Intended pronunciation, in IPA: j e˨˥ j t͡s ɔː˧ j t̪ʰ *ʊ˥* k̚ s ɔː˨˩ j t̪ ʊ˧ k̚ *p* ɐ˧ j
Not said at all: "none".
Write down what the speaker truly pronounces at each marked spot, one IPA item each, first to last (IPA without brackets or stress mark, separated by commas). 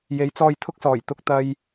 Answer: ʊ˥, t̪